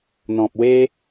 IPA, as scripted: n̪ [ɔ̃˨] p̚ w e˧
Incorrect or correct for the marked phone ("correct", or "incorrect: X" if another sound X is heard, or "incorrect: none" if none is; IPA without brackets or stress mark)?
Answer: correct